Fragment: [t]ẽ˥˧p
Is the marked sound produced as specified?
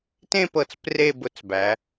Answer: yes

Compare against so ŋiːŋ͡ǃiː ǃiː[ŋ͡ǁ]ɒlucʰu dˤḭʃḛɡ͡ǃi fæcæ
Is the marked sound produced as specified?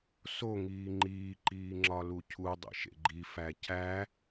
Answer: yes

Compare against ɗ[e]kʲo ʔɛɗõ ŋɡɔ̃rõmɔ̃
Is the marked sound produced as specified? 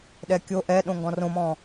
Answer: no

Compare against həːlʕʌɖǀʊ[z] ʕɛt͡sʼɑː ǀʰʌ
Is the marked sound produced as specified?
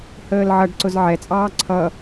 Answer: yes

